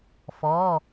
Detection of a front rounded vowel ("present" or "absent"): absent